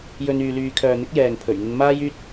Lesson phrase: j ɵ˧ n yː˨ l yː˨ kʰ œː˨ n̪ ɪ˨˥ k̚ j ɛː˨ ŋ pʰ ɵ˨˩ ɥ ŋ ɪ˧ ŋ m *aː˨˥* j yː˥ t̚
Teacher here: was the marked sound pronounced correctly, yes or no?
no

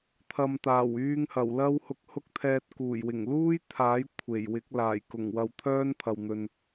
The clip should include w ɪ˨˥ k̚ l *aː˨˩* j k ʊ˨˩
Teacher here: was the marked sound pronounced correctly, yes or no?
yes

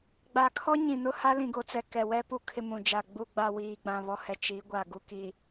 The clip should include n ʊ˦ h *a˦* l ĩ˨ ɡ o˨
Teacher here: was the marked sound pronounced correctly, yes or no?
yes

